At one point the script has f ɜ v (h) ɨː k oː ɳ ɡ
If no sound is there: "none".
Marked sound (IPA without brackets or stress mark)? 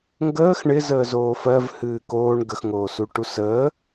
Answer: h